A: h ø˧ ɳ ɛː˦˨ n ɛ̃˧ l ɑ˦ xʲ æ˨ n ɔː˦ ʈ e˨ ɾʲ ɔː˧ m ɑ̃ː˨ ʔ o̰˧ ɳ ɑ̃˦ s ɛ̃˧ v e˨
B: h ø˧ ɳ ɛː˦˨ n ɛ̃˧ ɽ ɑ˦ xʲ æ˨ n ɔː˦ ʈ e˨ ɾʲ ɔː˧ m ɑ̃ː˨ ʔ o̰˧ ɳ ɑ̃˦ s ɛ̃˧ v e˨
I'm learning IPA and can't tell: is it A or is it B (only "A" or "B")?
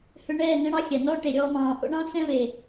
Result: B